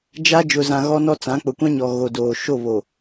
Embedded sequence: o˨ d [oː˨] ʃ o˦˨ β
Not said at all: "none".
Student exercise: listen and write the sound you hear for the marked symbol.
oː˨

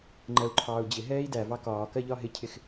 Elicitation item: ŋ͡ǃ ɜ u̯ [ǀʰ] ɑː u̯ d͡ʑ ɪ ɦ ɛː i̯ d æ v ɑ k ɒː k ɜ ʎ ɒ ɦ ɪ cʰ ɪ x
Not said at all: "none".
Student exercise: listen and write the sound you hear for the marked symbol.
ǃʰ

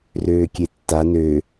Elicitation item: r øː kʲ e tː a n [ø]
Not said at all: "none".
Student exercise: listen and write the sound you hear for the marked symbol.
ø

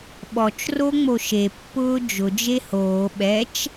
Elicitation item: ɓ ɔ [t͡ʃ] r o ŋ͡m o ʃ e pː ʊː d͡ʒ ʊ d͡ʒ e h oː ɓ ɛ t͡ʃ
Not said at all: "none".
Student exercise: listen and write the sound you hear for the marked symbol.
t͡ʃ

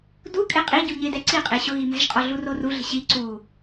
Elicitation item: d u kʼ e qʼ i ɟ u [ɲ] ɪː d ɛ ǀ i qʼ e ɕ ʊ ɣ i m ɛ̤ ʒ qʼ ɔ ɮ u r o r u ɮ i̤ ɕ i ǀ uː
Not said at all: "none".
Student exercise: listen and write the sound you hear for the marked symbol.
ɲ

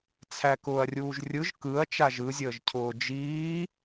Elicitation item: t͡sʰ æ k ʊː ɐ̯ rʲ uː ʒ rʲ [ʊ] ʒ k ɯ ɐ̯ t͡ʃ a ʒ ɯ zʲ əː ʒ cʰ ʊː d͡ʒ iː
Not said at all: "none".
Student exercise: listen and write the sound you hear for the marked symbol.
ɯ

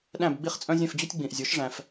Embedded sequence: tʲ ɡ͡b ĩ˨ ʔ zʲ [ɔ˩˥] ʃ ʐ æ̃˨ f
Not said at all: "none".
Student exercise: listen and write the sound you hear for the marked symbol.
o˩˥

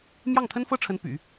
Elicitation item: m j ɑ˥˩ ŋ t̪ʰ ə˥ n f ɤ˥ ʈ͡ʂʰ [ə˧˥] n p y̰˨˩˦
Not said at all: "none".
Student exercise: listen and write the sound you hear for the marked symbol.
ə˧˥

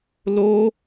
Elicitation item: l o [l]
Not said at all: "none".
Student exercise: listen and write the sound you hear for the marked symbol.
none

